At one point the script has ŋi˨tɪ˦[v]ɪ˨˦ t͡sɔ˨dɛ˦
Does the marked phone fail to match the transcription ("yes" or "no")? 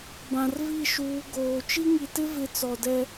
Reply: no